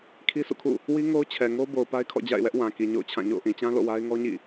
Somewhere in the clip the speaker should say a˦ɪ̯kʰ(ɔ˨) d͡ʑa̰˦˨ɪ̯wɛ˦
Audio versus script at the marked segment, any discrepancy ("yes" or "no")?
yes